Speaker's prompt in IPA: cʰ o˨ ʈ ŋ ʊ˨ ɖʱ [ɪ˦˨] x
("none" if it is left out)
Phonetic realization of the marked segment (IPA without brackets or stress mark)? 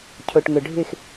ɪ˦˨